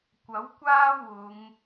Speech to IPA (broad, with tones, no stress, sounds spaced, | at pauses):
kʷ ɐ˨˥ w kʷ aː˥ w ʊ˨˧ ŋ